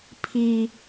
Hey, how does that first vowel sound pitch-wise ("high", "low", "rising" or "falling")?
high